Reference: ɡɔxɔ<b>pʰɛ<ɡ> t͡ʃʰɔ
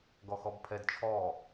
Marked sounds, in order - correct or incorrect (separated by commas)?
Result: correct, incorrect